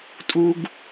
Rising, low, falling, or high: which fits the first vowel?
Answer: high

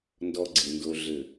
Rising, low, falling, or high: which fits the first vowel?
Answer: high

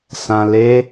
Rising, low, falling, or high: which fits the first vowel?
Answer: low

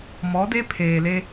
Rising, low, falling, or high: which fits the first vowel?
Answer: rising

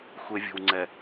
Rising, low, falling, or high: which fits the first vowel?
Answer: low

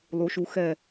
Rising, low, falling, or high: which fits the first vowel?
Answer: rising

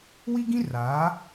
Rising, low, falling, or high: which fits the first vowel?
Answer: high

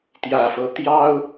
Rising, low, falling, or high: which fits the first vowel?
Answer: low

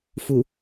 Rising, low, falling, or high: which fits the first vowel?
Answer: low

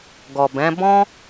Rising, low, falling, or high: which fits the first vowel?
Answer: low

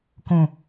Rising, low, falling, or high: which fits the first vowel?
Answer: low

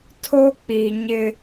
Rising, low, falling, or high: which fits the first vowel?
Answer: high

